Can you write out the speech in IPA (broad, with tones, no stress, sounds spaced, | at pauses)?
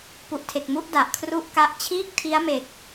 p u˨˩ ʔ tʰ e˨˩ k̚ m u˥˩ ʔ d a˨˩ ʔ kʰ r u˥˩ ʔ k a˦˥ ʔ t͡ɕʰ iː˥˩ k̚ tʰ i˦˥ a̯ m e˨˩ k̚